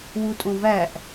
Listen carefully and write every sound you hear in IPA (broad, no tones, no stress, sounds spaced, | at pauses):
w u tʼ õ v æ ʔ